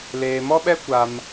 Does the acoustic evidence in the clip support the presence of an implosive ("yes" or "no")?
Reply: yes